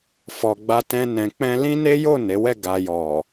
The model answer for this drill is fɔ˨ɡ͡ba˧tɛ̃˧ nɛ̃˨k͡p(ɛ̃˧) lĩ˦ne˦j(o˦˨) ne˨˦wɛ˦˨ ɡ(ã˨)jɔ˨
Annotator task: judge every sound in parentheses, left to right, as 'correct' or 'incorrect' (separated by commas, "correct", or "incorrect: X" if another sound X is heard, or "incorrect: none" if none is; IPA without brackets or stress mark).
correct, correct, incorrect: a˨